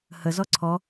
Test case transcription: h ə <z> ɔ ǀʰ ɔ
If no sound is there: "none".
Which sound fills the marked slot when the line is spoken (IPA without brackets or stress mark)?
z